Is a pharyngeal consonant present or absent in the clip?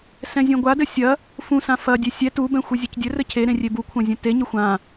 absent